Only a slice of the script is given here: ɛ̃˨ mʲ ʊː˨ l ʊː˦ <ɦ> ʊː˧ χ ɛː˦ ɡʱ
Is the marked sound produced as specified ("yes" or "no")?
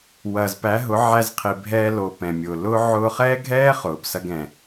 no